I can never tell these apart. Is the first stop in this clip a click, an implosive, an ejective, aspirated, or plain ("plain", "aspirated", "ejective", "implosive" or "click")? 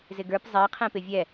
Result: plain